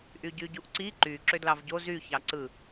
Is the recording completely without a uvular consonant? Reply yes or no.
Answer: yes